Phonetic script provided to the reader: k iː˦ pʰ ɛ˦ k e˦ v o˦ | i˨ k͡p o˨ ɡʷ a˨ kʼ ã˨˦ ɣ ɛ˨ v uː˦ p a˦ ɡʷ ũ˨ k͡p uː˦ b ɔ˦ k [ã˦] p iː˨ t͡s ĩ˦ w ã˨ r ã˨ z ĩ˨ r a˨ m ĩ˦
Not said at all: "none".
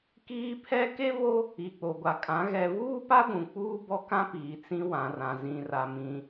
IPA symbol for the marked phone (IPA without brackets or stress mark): ã˦